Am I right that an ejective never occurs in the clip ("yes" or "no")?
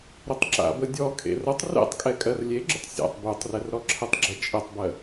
no